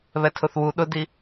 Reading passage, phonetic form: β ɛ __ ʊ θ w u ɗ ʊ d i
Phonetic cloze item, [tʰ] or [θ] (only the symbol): tʰ